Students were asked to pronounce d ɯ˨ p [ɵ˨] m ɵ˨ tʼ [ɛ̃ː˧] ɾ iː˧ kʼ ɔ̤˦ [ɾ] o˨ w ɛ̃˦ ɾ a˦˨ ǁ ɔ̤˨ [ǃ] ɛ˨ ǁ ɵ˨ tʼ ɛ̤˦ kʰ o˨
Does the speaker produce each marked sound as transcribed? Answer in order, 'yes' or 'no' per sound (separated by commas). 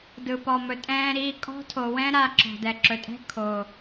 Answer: no, yes, no, no